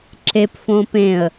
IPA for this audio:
ǁepfõ pẽə̯

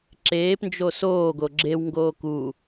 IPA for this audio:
ǁeːpnd͡ʒo soːɡo ɡ͡ǁewŋɡoː ku

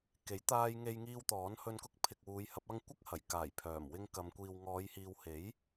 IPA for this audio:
ke˨˥jt̪aː˧jŋe˧j ŋiː˧wt̪ɔː˨˥n hɵ˧nkʊ˧k̚ pʰɪ˨k̚wuː˨˧jhɐ˨˥p̚ ɐ˥ŋ kʷɐ˥k̚hɐ˨˩j kaː˨˩j pʰœː˨˩mwɪ˧ŋkɐ˨˧m kʷiː˨wŋɔː˨˧jhiː˨whe˨˥j

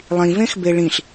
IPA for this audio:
lˠĩvẽxbe ɭĩɬ

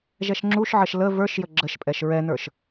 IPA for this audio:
ʒɛʃŋ͡ǁuʃʕəʃ lə və˞ʃjə ɡ͡ǁəʃpʼɛʃ ɹɛnə˞ʃ

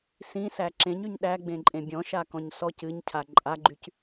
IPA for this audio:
sĩsæ ǁẽɲyɲ ɗæɡ͡bẽǃʼẽ bʲɔ̃ʃakɔ̃ɲ sɔc ɨɲcʰa ǃʼaɡ͡ǃyc

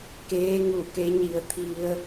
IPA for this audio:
keː˧˥ŋu˧˩ke˧˥ɲi˧ə̯ t̪ʰi˧ə̯

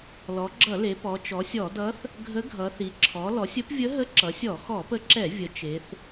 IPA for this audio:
lɔ˩˧ɡ͡ǁʌ˧˩˧le˩˧ pɔ˩˧t͡ʃɔ˩˧sʲɔ˧˩˧ dʌ˧˥θ | ɡʱə˧˥ ɡʱʌ˩˧θi˩˧ ǁʰɔ˩˧lɔ˩˧sʲ ə˧˥pvʲə˧˥ ɦə˧˥ǁʌ˩˧sʲɔ˧˩˧ xɔ˧˩˧pə˧˥ǁɛ˧˩˧ vʲə˩˧ t͡ʃe˩˧θ

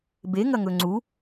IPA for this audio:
beŋɐŋɵ ŋ͡ǀu

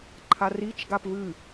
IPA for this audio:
ǃʰarit͡ʃ ɡapvɨ

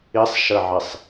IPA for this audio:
isˤʃəʕisˤ

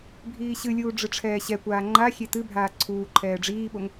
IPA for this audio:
bʱiːɕɨlʲuː ɖ͡ʐɨʈ͡ʂʰɛːɕɛkʷaː ŋ͡ǃaxʲe tɨbʱaː ǀʰuːǃʰɛː ɖ͡ʐiːɓoŋ

